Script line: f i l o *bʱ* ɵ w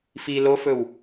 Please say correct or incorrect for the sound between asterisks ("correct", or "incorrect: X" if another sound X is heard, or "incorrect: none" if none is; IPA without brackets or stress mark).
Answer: incorrect: f